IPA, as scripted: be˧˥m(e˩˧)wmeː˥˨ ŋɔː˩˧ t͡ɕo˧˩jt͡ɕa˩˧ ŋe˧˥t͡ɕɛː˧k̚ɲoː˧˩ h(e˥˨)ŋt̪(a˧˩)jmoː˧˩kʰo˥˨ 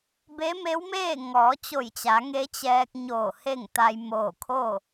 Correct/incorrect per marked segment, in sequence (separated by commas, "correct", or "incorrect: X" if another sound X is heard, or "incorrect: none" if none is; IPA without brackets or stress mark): incorrect: e˧˥, correct, incorrect: a˧